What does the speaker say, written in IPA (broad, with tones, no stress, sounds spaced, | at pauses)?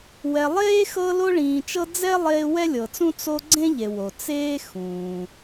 w ɛ˨ lˠ eː˥ x ɤ˦ l o˥ ɭ ĩː˨ t͡ʃ ɤ˥ d͡z ɛ˥ lˠ eː˦ w ɛ˥ lʲ ɤ˨ t͡s ũ˥ t͡s o˦ ɡ͡ǀ ẽ˥ ʎ e˩ w o˩ t͡s eː˥ x ũː˩